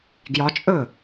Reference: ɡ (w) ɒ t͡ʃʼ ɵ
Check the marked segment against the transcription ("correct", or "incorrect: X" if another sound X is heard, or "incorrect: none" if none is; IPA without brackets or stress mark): incorrect: j